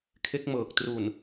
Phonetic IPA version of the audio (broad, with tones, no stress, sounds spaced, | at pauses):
kʰ e˦˥ k̚ m ɤː˨˩ k̚ t r u˨˩ n